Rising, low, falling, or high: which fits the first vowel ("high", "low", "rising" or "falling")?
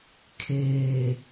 low